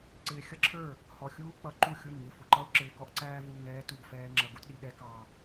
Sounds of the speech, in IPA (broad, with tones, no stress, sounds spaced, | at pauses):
ǀ ɪː˧ xʲ ʌ˥ ǁʰ ə˞˥˩ | h ɔ˧ xʲ uː˥ k͡p ʌ˧ ǃ u˥˩ xʲ u˥˩ n ŋ ɪ˥˩ f ʊ˧ ǃ ʌ˥ ʊ̯ ǁ ɪː˧ k ɔ˥ ʔ ǀ æː˥ v uː˧ ŋ ɛː˥ t u˥˩ ɡ f ɛː˥ ŋ͡ǁ ʌ˧ ɡ u˥ t ɗ i˧ ɗ ɛ˥ k ɑ˧